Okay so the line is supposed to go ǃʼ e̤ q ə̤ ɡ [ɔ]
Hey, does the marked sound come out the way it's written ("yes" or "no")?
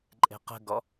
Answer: yes